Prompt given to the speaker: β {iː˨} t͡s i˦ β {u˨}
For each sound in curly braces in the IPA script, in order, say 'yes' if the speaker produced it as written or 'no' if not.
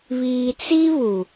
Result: yes, yes

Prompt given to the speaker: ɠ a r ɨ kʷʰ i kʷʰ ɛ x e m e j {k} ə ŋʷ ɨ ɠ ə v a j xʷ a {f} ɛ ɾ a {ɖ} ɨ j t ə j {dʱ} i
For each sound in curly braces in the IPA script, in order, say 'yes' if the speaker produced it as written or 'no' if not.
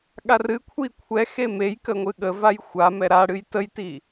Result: yes, no, no, no

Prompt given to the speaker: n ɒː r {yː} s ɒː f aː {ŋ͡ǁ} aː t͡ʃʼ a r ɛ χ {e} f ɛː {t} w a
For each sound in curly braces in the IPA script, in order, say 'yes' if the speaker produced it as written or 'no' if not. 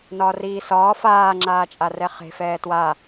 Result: no, yes, no, yes

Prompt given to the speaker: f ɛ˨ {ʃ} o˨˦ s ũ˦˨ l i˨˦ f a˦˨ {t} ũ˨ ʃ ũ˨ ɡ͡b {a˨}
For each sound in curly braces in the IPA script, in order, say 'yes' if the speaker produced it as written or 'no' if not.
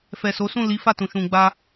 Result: no, yes, no

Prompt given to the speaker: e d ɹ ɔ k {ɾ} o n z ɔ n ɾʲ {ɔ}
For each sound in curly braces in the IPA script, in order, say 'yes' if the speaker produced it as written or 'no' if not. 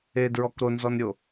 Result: yes, no

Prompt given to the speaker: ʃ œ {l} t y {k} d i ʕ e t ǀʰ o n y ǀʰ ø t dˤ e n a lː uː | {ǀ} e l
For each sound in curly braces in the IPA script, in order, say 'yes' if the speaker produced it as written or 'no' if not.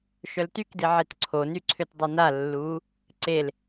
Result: yes, yes, yes

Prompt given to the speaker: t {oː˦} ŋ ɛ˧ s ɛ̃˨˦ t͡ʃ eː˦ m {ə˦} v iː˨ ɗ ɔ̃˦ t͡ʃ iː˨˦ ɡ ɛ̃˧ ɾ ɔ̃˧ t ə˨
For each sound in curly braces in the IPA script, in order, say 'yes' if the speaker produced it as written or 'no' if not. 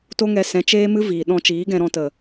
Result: no, no

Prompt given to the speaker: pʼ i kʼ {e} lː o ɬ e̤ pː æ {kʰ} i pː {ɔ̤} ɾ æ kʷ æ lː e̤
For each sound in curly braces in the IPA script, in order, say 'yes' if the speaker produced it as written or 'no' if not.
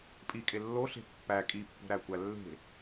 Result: yes, no, no

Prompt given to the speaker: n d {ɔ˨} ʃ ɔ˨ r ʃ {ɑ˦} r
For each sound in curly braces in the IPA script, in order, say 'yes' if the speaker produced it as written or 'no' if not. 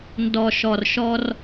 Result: yes, no

